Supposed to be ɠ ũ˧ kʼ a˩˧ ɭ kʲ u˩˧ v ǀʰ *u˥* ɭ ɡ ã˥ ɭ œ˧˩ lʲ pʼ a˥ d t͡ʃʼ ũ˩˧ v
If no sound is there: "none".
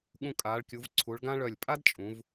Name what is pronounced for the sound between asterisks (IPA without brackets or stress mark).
u˩˧